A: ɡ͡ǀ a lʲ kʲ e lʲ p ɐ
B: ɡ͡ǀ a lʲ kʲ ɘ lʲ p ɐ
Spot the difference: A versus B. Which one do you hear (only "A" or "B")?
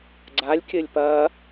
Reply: B